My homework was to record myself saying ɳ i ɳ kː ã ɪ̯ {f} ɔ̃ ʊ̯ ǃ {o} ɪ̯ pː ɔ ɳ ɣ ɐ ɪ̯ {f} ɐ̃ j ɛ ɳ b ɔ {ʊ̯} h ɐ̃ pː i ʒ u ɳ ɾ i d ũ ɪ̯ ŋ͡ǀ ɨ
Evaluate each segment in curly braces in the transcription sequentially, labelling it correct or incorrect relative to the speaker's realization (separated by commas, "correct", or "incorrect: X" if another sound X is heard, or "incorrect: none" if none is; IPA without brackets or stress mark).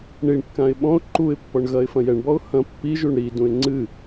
incorrect: ɓ, incorrect: u, correct, correct